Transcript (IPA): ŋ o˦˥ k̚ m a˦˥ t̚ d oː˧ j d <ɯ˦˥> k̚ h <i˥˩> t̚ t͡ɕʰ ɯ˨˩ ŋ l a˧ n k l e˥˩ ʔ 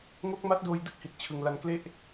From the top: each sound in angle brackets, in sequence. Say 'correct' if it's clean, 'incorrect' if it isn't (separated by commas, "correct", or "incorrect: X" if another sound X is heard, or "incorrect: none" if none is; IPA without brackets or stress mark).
incorrect: ɯ˥˩, incorrect: i˨˩